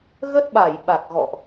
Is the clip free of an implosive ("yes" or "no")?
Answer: no